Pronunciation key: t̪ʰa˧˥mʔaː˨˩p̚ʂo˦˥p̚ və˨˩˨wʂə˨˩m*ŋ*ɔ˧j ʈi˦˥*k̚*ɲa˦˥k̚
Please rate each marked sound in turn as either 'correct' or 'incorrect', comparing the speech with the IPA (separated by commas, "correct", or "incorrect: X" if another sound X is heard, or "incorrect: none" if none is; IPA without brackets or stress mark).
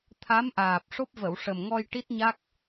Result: correct, incorrect: t̚